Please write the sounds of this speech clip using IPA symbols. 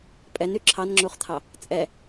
pʼɛny ǁʰɑnŋ͡ǁuχt̪ʰɑ | t͡sʼɛ

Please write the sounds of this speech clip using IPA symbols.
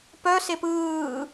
pœsep ɯː

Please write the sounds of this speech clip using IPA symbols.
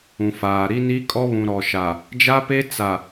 ũ˨faː˨ ɾi˦ni˦kʼɔ˦βũ˨ ɾɔ˨ʃa˨ | d͡ʒa˦pe˦ t͡sa˨

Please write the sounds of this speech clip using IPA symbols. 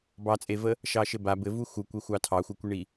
bɑt͡sʼevə | ʃɑʃɘba bɘvu xukʷexʷɑ tʰɑxʷɘkʷiɳi

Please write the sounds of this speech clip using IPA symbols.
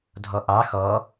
dʱɔʔɑ xɔ

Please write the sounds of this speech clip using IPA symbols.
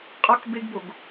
qʼɒk beɡboɡ

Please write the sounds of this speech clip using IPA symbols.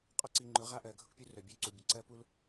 qʼɔ˦ǀi˨ŋ͡ǃʊ˨˦ ʁa˦ʔɜ˨ɡʱʊ˦kpʲu˦ rœ˨bʲœ˦˨ǀu˨bʲə˨ ǀɜ˦pu˦l

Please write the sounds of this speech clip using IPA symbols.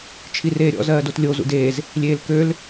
t͡ʃʰireːɾʲɔ̰ zɜːdotlʲo zṵdeːz | lʲeːlkøl

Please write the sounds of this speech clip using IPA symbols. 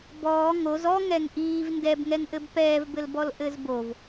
bɔː ŋoz ɔ ŋɛŋʔiːv ndɛbŋɛŋʔɘb pɛːvbɘlbɔl ʔɘzbov

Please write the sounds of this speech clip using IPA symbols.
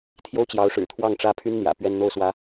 t̪ʰjo˥ʊ̯t͡ɕjɑ˧˥ʊ̯ʂɻ̩˨˩ t̪ʰwɑ˥˩ŋʈ͡ʂä˥pʰy˥n n̪jä̰˨˩ pɥɛ˥n n̪o˥˩ʊ̯swä˧˥

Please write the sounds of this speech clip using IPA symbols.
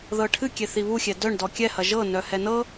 ðɤʈʰɨkʲe θiβuxʲɛ dœɳ dɔkʲɛhɐ ʒɤnœhɛ nɤ

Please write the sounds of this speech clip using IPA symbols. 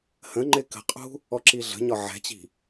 hə̃ŋ͡ǃɪ kə̤qʼṳ | ɔǁiɮə̤ɲɒ ʕɛ̤t͡ɕi̤

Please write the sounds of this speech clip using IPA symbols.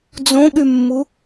d͡zõɠymːu

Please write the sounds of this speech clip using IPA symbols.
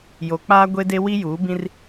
jo˨ k͡paː˦ɡʷe˦de˦ wi˦juː˨˦bĩ˦r

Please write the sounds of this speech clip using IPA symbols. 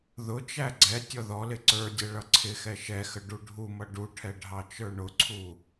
ðʊt͡ʃæ ɡ͡ǀɛ tʲɔðɔlɪ ǀə˞dʲɛ ɭʌǀʰɪxɛ ʃɛxə ɖuɖʱumʌ ɖuʈʰɛ ɖʱɑt͡ʃə˞ɳʊǀʰu

